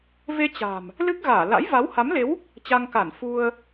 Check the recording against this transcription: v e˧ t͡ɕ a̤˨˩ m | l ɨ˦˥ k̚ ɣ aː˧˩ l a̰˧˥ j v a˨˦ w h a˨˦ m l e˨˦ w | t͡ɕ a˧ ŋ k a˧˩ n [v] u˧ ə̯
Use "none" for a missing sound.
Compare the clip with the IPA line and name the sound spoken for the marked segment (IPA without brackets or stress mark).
f